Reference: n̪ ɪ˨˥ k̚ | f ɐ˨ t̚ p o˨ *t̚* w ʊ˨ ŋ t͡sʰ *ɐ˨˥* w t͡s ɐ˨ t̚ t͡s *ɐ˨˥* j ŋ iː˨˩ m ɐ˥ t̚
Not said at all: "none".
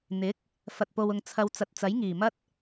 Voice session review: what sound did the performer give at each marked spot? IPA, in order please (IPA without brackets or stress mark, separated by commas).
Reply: none, ɐ˧, ɐ˨˥